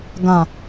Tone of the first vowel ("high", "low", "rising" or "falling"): low